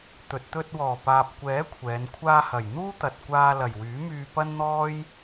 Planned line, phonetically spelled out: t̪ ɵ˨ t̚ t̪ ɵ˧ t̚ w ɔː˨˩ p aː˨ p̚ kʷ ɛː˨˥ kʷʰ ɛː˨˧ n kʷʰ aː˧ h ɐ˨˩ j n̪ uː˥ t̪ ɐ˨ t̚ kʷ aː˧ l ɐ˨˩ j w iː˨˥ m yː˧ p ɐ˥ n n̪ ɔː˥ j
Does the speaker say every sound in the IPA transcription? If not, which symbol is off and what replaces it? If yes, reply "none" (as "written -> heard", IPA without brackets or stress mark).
iː˨˥ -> yː˨˥